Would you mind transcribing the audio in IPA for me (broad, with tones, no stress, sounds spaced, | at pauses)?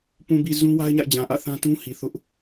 p ũ˨ b i˨ z ũ˦ w a˦ ɪ̯ ɲ a̰˦˨ ɪ̯ d͡ʑ ã˨ ʔ ä̰˦˨ θ ã˦ t ũ˦ h i˨ θ ʊ˦ ʔ